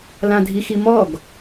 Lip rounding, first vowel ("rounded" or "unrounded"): unrounded